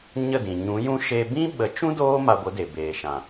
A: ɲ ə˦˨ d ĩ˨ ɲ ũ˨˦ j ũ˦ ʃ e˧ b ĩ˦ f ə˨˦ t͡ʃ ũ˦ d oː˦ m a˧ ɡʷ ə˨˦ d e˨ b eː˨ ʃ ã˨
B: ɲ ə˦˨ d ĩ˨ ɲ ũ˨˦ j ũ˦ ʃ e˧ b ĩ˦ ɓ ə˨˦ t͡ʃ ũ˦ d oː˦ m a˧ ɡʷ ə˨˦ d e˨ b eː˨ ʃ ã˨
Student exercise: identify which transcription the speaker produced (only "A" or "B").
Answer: B